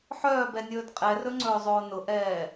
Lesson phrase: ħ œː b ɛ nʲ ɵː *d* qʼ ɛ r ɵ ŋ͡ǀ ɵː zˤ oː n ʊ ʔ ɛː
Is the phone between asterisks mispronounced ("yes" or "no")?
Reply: no